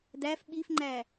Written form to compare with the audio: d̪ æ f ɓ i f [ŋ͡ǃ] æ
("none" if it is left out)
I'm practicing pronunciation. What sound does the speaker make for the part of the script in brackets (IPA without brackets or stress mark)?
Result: ŋ͡ǃ